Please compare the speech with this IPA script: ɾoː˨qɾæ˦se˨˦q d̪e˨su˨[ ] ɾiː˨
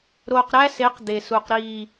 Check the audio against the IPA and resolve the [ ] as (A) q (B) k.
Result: A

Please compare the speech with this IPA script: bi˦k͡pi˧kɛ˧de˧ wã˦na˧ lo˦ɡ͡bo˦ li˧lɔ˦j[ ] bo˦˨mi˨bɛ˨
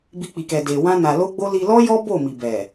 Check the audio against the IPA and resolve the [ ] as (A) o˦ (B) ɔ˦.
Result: B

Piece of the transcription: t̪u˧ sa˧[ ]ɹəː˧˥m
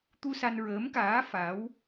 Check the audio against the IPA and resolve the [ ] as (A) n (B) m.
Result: A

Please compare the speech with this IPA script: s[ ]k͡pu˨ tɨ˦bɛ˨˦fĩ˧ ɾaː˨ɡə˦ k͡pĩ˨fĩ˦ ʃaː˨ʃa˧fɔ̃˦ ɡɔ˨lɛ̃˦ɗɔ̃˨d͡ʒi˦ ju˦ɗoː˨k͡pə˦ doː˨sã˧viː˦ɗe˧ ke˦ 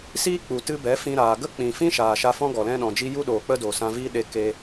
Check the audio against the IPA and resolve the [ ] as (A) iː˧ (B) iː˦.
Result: B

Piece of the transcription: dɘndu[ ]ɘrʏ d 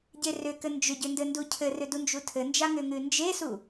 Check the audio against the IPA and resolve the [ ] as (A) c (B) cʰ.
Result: B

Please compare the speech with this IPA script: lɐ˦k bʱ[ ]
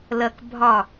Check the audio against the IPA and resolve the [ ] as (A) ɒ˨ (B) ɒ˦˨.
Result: B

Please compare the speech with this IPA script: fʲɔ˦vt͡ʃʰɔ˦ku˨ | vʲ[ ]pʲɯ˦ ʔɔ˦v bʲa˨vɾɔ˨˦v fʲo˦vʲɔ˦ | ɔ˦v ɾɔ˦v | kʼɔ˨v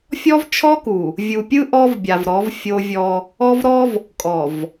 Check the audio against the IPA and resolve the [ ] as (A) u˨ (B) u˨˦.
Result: A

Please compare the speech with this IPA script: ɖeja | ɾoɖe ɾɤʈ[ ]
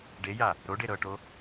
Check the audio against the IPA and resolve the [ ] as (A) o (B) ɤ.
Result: A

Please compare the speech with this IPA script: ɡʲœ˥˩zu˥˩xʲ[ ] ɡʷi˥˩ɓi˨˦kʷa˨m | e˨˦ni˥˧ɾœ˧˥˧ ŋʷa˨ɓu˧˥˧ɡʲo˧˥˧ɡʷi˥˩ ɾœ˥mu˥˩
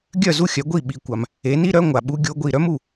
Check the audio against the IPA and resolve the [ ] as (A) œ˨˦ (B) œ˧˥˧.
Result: A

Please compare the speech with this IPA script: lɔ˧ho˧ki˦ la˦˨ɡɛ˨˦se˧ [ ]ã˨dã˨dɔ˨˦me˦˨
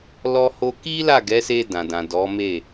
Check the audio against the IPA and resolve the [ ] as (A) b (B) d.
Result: B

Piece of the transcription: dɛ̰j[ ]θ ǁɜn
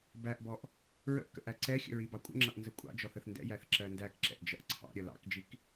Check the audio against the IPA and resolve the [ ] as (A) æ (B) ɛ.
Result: A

